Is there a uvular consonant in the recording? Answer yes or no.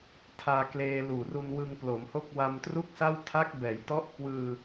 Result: no